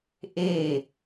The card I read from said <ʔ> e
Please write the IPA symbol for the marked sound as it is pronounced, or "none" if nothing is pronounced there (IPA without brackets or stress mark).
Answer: ʔ